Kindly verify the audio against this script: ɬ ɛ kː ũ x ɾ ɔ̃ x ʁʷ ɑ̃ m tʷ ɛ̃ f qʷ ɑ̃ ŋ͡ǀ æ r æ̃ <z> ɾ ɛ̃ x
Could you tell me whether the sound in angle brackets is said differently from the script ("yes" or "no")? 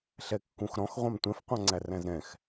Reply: no